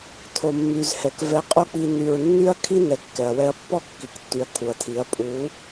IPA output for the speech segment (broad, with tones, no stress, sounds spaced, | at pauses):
tʰ o˨ mː y˨ z h ɛ˨ k v ɛ˧ qʼ o˦ k͡p i˧ n y˨ ɹ nː y˦ ɐ̯ kʰ i˦ n ɛ˨ kː ɛ˨ ɐ̯ w ɛ˧ ɐ̯ pː ɔ˦ kː i˨ k tː y˨ ɐ̯ kʰ u˨ ɐ̯ tʰ i˨˦ ɐ̯ pʼ u˨˦